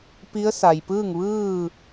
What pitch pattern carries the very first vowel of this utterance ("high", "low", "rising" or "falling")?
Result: rising